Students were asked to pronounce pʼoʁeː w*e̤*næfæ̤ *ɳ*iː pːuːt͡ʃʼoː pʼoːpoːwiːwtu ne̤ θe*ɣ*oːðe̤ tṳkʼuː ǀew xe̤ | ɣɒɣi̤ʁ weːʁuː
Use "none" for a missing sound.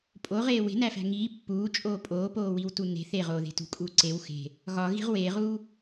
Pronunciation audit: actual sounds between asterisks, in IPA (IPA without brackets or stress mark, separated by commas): e̤, ŋ, ʁ